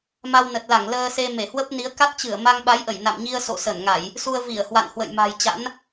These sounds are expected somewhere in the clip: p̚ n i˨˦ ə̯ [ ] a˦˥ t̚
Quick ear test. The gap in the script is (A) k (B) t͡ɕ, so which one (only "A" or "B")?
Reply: A